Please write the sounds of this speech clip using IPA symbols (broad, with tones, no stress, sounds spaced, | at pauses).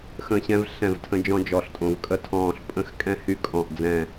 x ə̃˦˨ ɕ ɛ̃˦ v ɬ ɛ̃˦˨ v tʰ ə̃˦ d͡ʒ ɔ̃˦ d͡ʒ ɔ˦ ɬ tʼ õ˦ v kʼ ə˦ tʰ ɔ̃ː˦˨ ɬ pʼ ə̃˦ x kʼ ɛ̃˦ h y˦˨ kʼ ɔ̃˦˨ ʔ d͡z ɛ̃˦˨